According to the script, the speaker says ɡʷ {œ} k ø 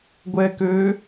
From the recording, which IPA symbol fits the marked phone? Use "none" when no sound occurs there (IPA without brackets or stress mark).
ɛ